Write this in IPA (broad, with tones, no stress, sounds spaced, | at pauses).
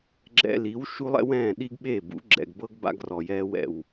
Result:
ɡ͡ǁ ɛ̰˧ l i˩˥ w ʃ u˥ lˠ ɛ̰˥ w ɛ̃ː˥˩ ɗ i˥ ɡ ɓ e˥˩ b ṵ˩˥ ɡ͡ǁ ɛ̰˩ ɡ b ɤ˥ ɡ b a̰˧ ɡ r ɔ˩ j ɛː˧ w ɛ̰˩ w